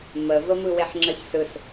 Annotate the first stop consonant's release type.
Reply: click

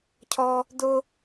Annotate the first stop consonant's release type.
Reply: aspirated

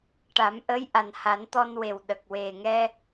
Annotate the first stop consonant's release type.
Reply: plain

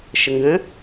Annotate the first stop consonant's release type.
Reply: plain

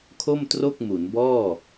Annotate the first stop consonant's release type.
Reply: aspirated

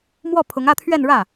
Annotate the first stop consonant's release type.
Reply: aspirated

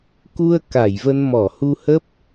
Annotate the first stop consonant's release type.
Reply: plain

